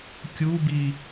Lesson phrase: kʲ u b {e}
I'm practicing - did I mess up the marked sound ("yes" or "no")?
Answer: yes